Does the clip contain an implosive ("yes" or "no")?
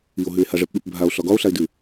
yes